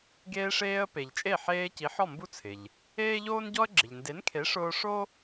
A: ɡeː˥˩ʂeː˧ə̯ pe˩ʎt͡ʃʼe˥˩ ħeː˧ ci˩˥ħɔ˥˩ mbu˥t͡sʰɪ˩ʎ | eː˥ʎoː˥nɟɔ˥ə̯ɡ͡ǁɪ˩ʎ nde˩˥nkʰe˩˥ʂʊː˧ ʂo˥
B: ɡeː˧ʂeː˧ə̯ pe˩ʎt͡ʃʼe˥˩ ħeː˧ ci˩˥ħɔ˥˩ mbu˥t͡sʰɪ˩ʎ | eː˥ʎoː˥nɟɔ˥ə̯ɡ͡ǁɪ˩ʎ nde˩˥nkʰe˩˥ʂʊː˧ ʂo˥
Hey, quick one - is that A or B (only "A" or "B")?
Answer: B